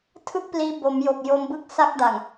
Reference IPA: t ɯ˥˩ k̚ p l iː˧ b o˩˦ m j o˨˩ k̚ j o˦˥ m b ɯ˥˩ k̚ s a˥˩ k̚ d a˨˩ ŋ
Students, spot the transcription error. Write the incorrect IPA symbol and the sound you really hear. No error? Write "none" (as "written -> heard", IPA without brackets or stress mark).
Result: t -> tʰ